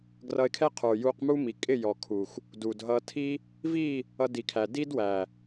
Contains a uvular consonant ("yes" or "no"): yes